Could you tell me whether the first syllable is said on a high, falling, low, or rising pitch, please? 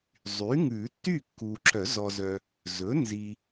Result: rising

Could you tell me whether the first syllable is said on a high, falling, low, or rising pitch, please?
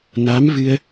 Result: rising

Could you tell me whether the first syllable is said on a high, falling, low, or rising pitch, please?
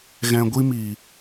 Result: low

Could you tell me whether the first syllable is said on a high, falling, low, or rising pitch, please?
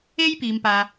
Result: high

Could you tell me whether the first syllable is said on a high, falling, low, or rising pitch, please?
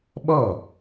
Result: falling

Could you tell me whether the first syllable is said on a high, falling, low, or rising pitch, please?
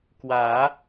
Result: rising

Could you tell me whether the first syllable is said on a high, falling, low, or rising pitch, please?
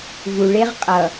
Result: low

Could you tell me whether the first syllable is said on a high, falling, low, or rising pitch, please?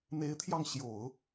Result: rising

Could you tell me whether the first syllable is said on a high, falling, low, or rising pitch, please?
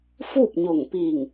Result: falling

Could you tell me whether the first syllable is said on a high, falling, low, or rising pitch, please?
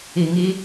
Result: low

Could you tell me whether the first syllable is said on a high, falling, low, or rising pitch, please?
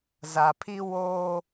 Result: low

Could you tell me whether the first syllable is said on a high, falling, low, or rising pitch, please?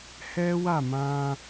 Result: high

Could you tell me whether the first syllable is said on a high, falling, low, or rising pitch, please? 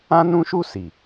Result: high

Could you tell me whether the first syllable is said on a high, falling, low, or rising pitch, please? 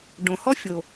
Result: low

